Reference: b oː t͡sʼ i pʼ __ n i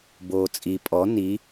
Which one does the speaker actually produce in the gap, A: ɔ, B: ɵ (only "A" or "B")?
A